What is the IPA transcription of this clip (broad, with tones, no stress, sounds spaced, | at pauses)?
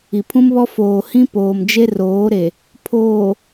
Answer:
i˨ pʰ ũ˦ m β ɔ˦ f oː˨ h ĩ˦ p oː˨ m d͡ʒ e˦ r oː˨˦ ɾ e˨ | pʰ oː˨